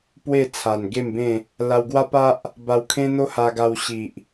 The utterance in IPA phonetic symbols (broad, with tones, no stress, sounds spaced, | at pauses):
p w e˥˧ t͡sʰ a˨˩ n ɡ e˥˧ m b ẽ˥˧ | l a˧ w ɡ w a˦ p a˦ ʔ | b a˧ w kʰ ẽ˦ n̪ o˦ h a˧ ɡ a˧ w ɕ i˨ ʔ